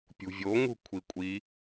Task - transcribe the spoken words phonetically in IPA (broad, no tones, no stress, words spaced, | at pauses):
pʲṳvʲoŋṳ kʷʰikʷʼi